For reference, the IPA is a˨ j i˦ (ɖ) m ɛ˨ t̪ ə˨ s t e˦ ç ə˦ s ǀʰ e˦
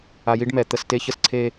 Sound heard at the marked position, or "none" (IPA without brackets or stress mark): ɖ